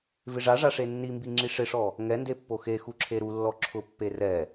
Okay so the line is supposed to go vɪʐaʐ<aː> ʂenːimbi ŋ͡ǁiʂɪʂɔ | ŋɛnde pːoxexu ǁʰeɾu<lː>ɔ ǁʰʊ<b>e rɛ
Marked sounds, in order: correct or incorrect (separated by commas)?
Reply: incorrect, correct, incorrect